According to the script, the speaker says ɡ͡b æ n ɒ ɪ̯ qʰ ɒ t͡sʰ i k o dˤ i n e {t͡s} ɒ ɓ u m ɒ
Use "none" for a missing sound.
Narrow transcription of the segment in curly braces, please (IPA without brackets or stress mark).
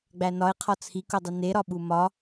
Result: ɾ